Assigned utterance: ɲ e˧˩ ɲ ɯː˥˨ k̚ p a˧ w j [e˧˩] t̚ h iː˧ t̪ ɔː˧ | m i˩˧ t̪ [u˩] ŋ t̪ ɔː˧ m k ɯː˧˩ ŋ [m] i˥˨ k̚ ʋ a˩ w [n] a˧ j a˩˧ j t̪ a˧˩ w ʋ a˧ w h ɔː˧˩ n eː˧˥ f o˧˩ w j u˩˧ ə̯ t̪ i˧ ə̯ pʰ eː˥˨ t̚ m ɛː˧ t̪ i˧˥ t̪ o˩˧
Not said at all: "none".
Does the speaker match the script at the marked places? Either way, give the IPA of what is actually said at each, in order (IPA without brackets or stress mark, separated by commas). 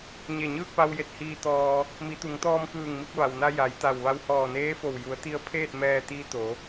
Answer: e˧˩, u˩˧, m, n